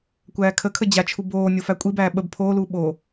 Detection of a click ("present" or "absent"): absent